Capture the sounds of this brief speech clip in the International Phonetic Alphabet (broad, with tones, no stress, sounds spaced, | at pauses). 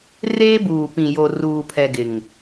r eː˦ b uː˨ p ĩ˨ j o˨ r uː˨ pʰ ɛ˨ ɡ ɪ˨ ŋ